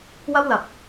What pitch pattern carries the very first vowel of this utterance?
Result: high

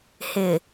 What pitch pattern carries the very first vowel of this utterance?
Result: low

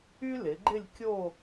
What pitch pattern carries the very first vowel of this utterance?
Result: high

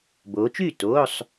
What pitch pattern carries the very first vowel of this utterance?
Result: rising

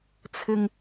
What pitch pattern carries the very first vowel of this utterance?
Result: low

